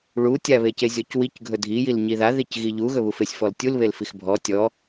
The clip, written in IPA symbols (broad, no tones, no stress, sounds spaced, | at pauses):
ɭ u tʲ a β e c e zʲ ɔ c w i c ɡʱ ɵ dʱ i j i l ɲ i ð a ð i c ɣ i ʎ u ɣ ɵ β u f e sʲ f ɔ l tʲ u l β e l f i x bʱ ɔ tʲ ɔ